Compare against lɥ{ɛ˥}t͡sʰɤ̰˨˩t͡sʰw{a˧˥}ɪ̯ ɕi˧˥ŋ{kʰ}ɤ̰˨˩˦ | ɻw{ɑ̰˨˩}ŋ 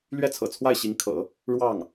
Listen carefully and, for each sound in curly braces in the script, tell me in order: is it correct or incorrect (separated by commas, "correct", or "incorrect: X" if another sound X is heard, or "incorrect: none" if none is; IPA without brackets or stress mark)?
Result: correct, incorrect: a˥˩, correct, incorrect: ɑ˥˩